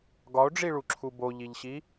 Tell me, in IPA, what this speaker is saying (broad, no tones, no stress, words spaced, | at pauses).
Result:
ɡɒo̯ɖ͡ʐiɭuǁʰu boʎiʎɕi